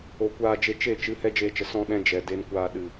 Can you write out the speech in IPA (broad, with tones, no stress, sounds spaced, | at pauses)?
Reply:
o˨ kʷ aː˧ d͡ʒ e˧ t͡ʃ e˦˨ t͡ʃ ɨ˨˦ h ɛ˦ d͡ʒ eː˧ t͡ʃ ə˨ s ɔ̃˧ ɗ ɛ̃˧ d͡ʒ ɛ˨ d e˧ n kʷ aː˧ ɗ ɨ˨